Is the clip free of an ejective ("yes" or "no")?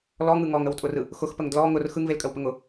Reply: no